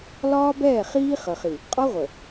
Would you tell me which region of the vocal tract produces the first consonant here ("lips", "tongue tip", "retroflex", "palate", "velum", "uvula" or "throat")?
tongue tip